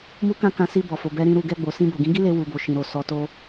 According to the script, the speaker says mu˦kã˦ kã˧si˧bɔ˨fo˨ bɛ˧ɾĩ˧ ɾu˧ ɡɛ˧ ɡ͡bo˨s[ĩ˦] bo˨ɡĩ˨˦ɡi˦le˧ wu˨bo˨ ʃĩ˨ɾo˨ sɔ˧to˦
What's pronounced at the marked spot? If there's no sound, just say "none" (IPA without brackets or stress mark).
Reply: ĩ˧